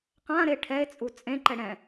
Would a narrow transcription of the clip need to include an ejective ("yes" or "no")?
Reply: yes